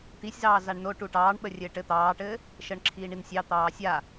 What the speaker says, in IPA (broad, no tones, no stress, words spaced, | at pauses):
t̪isʲzɑː zaɳno ʈuʈɑːɳɓə rʲɘːʈɘ t̪ɑːʈɘː | ʃəːɳǁʰiːɳinsʲɑ t̪ɑːsʲa